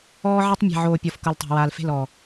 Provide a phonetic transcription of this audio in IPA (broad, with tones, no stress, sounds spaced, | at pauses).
ɔː˦ ʕ e˦ tˤ mʲ e̤˨ ʕ oː˨ pʲ ɔ˨ f k ɤ˨ l tˤ a̤˨ w aː˨ l f e̤˦˨ l ɔː˨